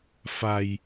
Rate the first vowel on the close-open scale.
open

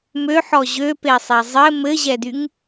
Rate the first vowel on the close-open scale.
mid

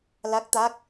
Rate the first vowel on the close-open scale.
open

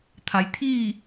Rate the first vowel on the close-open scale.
open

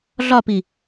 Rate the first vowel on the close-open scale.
open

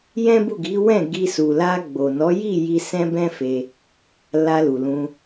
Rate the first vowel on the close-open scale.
mid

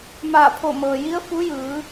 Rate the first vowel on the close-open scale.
open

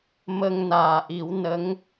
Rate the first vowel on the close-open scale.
mid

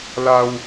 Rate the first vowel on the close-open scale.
open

